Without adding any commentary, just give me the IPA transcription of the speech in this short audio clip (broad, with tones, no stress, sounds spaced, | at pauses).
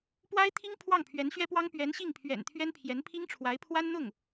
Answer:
p w a˥ ɪ̯ t̪ʰ i˥ ŋ pʰ w ɑ˥˩ ŋ pʰ ɥ ɛ˧˥ n ɕ ɥ ɛ˥ p w ɑ˥ ŋ p ɥ ɛ˧˥ n ɕ i˥˩ ŋ pʰ ɥ ɛ̰˨˩ n t̪ʰ ɥ ɛ˥ n pʰ j ɛ˧˥ n pʰ i˥ ŋ ʈ͡ʂʰ w a˧˥ ɪ̯ pʰ w a˥ n n̪ ʊ˥˩ ŋ